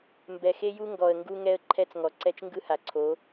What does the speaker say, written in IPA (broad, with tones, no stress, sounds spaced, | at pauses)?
m b ɛ˨ x e˦ j u˦ ŋ ɡ ɔ˨ ə̯ ŋ ɡ u˦ ŋ ɛ˦ ə̯ ǃʰ ɛ˦ t͡s ŋ ɔ˨ ǀ ɛ˦ t͡ʃ ŋ ɡ ɯ˦ h a˨ ǀʰ o˨˦